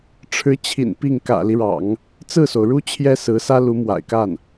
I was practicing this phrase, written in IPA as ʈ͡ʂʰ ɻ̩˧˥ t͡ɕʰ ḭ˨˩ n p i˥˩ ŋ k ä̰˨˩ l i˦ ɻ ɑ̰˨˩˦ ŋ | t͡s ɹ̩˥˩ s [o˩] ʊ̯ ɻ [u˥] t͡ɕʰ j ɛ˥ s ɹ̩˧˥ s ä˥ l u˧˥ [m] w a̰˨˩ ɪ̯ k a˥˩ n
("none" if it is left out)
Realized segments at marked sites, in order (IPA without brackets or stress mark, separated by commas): o˩, u˥, m